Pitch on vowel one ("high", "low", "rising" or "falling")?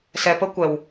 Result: low